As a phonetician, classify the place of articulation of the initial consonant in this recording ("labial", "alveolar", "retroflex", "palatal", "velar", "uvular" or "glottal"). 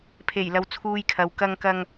labial